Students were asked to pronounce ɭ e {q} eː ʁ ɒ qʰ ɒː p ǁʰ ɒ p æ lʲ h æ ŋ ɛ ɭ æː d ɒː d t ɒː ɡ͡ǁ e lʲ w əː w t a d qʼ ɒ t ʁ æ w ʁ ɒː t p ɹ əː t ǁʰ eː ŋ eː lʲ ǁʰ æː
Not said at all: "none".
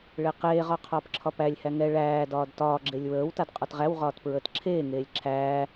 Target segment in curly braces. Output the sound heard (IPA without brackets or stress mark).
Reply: q